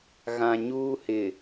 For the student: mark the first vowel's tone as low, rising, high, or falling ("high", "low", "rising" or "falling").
low